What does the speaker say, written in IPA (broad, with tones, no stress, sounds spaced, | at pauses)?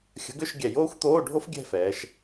xʲ ə̤˨˥ ɡ ʏ˧˥˧ ʃ ɡʲ ɛ˧˩ j oː˥ xʷ t̪ oː˧˥˧ ɖʱ o˥ f ɡʲ ɛ̤˥˧ f ɛː˩˧ ʃ